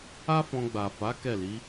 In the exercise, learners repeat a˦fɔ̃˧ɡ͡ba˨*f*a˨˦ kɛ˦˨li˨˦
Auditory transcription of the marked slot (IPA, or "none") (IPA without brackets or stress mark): f